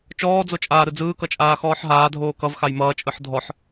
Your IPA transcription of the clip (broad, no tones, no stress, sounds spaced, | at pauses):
t͡ʃ ɔː d͡z o t͡ʃʼ aː ɾ ɯ d͡z ɯː k ʌ t͡ʃʼ aː x ɔː ħ ɦ aː dʱ oː k ʌ v x a j m ʌː t͡ʃʼ ɯ ħ dʱ ɔ ħ